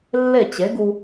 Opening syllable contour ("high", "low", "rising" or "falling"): falling